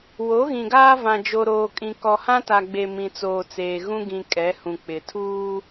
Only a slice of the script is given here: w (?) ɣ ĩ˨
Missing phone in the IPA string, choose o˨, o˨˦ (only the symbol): o˨˦